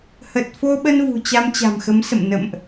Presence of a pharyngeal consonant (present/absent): absent